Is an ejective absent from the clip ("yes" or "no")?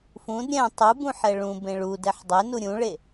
yes